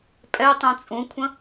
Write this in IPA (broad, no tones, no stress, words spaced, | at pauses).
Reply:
pʼɛ tˤũt͡sʼũkʷʰə̃